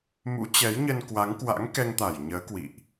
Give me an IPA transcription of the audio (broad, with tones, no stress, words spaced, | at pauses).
mṵ˧˥t͡ɕɛ˨˦jɲə˧n kwa˨˦ŋkwa̰˧˥ŋkɛ˧ŋt̪a˧˩j ɲəː˨˦kwḭ˧˨ʔ